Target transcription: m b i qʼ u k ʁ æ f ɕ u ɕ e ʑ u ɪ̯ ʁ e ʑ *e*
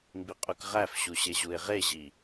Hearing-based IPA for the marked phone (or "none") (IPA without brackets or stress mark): i